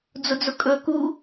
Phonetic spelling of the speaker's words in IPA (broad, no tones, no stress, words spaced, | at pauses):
d͡zʊd͡zʊkʼɵ ku